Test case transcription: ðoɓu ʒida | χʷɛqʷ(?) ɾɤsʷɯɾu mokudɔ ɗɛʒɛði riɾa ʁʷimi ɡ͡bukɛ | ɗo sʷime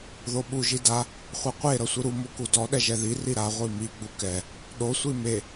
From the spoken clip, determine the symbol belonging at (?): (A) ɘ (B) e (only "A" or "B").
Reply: B